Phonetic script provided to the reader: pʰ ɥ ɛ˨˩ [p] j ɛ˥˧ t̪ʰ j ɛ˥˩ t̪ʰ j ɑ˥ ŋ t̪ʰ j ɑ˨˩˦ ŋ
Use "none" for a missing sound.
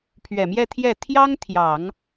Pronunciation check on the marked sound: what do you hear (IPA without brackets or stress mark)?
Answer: m